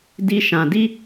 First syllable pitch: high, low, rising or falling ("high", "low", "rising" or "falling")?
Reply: high